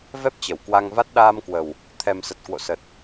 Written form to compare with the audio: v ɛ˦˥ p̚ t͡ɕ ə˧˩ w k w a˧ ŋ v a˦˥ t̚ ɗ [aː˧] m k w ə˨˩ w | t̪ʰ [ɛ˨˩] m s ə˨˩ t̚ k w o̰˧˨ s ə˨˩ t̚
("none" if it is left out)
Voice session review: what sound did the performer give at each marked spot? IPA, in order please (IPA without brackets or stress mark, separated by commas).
aː˧, ɛ˨˩